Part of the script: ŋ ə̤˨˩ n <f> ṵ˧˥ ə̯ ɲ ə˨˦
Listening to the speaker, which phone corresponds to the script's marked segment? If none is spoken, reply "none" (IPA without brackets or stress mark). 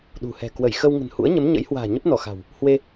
h